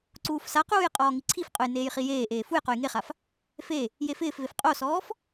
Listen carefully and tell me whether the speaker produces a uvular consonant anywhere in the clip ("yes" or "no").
yes